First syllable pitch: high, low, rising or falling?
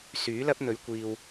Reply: rising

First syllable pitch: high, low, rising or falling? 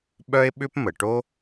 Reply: high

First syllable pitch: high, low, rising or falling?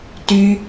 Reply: high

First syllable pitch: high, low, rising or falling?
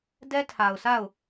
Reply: high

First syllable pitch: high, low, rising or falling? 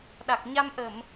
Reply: low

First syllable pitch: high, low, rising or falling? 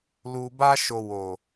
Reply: low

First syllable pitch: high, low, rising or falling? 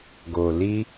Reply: low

